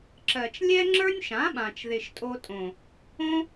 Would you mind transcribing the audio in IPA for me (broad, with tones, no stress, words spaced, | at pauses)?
ǁɜ˨t͡ʃlʲɛ˦ŋ͡ǁə˞˦nʲʃã˨˦ ɓã˨t͡ʃðɪ˨ʃtʼo˧tʼõ˨ | õ˦